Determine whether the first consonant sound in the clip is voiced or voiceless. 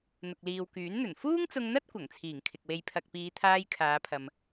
voiced